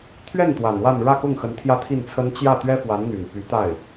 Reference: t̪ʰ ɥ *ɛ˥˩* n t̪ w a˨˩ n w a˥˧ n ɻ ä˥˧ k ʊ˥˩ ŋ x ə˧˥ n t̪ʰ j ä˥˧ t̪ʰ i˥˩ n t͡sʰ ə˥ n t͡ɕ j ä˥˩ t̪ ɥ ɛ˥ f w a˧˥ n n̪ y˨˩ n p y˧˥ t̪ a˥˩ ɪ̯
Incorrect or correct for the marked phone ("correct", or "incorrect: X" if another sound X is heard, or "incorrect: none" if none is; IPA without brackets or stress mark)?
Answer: correct